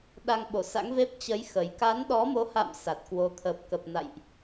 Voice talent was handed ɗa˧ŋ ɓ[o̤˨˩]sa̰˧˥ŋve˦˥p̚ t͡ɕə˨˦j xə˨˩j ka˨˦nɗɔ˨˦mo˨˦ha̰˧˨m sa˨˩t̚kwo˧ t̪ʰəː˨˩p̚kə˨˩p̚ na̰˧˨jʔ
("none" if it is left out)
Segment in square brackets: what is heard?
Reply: o˧˩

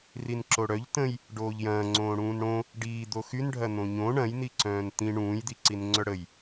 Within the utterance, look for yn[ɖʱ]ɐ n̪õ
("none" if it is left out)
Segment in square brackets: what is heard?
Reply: ɖʱ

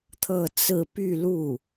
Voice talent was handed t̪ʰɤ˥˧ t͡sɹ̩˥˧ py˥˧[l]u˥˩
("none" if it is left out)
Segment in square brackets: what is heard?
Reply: l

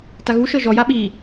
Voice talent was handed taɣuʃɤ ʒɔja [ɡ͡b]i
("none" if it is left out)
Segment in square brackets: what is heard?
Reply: ɓ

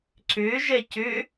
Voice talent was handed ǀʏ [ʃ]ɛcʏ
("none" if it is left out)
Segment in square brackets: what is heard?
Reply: ʒ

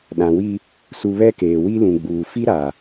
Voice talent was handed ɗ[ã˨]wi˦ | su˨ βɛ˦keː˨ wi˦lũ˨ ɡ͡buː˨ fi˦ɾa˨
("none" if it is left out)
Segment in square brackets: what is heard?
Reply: ã˨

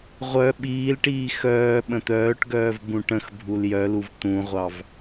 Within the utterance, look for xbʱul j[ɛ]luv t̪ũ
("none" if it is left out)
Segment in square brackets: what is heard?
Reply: œ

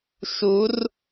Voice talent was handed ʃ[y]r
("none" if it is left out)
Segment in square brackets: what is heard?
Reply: u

